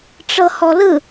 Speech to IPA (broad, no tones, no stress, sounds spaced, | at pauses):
ʈ͡ʂ ɤ h ɔ l ɯ